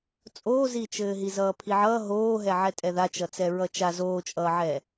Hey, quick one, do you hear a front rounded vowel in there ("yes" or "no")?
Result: no